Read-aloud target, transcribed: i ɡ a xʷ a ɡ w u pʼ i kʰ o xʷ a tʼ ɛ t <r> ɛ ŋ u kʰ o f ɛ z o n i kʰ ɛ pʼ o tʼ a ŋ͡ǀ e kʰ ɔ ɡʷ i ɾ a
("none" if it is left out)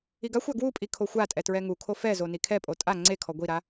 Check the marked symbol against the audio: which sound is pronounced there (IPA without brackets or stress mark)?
ɹ